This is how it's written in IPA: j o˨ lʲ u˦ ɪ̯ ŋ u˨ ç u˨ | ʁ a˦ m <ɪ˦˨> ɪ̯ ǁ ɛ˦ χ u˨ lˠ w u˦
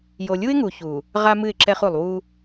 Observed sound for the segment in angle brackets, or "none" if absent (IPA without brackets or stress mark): ɨ˦˨